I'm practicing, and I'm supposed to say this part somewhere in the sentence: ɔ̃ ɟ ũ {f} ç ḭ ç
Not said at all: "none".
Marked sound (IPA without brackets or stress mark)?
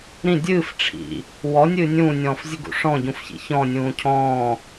f